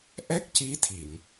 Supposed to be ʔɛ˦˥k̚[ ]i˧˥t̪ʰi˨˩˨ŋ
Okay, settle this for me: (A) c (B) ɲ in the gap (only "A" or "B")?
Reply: A